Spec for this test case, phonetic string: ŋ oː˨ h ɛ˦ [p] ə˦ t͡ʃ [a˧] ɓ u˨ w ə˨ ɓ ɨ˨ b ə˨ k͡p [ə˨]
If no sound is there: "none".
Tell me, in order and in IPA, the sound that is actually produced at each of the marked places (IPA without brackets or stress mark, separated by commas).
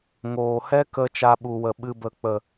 k, a˧, ə˨